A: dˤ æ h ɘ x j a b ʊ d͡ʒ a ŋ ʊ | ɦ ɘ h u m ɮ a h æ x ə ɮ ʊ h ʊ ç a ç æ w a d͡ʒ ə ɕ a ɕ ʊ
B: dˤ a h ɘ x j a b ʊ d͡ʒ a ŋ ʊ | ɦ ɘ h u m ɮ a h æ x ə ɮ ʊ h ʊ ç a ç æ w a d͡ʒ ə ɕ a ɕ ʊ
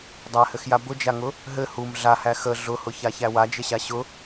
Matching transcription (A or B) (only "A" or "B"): A